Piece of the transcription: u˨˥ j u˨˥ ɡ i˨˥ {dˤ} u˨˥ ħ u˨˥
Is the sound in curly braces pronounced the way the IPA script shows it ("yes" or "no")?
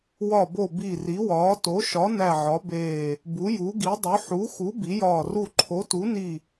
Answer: yes